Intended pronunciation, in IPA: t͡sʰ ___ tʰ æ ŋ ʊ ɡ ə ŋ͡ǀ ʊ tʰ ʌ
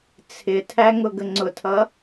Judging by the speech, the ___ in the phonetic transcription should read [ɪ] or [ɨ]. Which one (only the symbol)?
ɪ